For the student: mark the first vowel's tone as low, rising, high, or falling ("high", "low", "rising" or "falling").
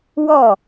falling